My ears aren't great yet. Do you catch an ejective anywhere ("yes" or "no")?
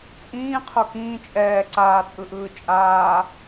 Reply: yes